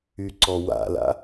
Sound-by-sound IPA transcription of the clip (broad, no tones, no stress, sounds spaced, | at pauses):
y ǀ ɔ w a̰ l a̰